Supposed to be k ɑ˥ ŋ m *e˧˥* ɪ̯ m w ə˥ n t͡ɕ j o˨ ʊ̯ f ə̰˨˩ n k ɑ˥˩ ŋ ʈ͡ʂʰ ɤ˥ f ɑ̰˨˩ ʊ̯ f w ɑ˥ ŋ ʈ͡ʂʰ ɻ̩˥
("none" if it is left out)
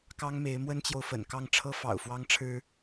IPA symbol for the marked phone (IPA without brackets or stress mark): e˧˥